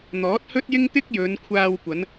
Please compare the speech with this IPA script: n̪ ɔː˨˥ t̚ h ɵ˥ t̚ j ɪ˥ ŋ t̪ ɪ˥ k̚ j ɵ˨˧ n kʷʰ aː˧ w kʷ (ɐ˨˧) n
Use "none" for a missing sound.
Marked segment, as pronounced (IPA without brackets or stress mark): ɐ˨˧